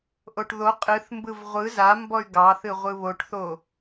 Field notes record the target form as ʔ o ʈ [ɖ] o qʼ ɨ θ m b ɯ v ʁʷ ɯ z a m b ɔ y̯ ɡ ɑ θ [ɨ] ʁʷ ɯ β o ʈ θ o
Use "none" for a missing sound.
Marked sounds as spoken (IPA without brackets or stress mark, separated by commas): ð, ɨ